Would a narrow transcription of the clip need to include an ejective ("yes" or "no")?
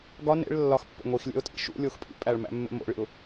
yes